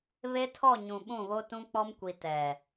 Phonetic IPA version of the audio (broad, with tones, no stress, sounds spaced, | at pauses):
β e˦ tʰ ɔ˦˨ ɲ ũ˨ ɓ ũ˦˨ β o˦ t ũ˦ k͡p ɔ˦ m kʷ i˨ t ɛ˨